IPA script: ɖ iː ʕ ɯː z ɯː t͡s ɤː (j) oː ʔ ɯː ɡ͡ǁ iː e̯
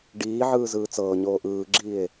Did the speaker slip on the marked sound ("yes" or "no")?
yes